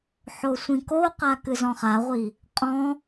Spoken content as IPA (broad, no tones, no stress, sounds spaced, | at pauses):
ħ o sʷ ĩ k o q a k ɨ z ɔ̃ χ a ʁʷ i | qʼ ɔ̃